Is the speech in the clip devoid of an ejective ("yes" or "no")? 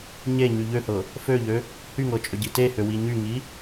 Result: no